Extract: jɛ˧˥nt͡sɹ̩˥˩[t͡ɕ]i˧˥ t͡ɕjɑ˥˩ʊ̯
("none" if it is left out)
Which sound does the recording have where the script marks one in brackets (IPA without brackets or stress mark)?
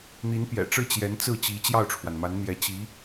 t͡ɕ